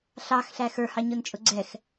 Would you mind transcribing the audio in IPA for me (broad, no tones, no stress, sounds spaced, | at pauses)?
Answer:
ɬ ɑ x ɬ æ x ə˞ h ɑ ɲ ʊ n t͡ʃʼ ʊ ɡ͡ǀ ɛ x